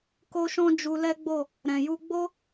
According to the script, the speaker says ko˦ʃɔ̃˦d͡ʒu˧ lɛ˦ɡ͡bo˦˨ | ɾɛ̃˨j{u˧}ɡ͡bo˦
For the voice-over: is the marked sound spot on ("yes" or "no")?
yes